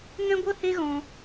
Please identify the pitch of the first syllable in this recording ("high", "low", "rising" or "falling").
high